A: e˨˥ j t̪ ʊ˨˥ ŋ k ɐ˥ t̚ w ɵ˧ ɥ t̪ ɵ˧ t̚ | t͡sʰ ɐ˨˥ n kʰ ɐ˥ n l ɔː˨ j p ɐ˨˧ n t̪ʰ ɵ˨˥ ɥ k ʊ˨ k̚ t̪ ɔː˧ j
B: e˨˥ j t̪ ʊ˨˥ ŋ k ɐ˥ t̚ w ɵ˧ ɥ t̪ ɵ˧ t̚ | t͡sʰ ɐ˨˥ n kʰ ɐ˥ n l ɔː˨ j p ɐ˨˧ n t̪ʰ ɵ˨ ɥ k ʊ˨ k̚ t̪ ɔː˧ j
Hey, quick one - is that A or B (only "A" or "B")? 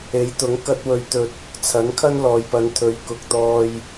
A